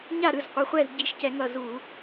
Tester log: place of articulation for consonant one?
palatal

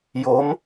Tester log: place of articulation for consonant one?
palatal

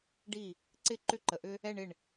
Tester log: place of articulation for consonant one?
retroflex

